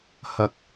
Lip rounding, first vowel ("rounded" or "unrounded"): unrounded